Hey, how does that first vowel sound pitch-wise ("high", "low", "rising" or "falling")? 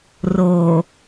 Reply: low